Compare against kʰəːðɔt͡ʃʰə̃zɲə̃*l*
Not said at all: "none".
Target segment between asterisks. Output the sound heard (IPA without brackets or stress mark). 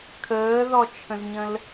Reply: l